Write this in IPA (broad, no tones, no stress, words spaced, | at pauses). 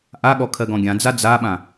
ʔaɠɔkʰɜ ɡɔ̃ɡʲãd͡za d͡zaɓã